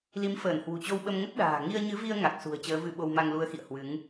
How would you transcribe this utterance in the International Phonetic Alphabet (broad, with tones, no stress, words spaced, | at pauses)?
li˨˦mfəː˧˩nhwṳ˨˩t͡ɕo˧w ɓə˧m ŋə˦˥t̚ ɗa̤ː˨˩ ŋi˧ə̯ɲɨ˨˦vi˧ə̯ ŋa˨˩k̚sṳ˨˩ə̯ t͡ɕəː˨˦vɨ˧ɓo˧wma˧ŋ lu˨˦ə̯xḭ˧˨ə̯ hwɨ˨˦ŋ